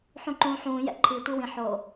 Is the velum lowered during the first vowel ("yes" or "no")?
yes